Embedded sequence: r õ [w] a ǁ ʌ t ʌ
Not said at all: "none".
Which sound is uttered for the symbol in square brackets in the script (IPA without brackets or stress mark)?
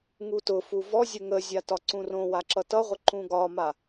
w